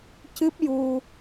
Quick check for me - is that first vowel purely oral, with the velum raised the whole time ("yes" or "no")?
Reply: yes